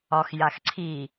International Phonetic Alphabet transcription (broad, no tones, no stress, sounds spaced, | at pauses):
ɒ x j a x ǀʰ i